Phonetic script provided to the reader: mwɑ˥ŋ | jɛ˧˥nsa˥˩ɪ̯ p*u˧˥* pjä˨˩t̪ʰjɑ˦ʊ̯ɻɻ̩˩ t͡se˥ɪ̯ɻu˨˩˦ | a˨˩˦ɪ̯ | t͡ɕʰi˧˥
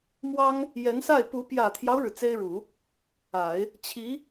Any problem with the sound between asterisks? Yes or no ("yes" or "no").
no